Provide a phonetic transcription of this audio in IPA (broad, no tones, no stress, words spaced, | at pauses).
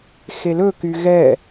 xelɵ kyɣɛ